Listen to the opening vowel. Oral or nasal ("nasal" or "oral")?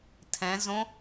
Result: nasal